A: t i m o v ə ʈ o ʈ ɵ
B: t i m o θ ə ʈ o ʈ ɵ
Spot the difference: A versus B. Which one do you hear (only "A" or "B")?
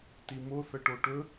B